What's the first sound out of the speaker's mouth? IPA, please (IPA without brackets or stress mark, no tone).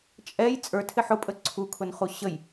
t͡ʃʼ